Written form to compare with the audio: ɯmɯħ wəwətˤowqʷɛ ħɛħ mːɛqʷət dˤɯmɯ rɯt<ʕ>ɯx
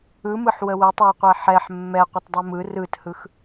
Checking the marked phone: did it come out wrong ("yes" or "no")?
yes